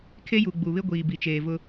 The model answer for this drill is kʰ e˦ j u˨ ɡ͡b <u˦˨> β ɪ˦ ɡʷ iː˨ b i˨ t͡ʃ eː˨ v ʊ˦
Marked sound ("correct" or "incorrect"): incorrect